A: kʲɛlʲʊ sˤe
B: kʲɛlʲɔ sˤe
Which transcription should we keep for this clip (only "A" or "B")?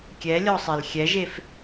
B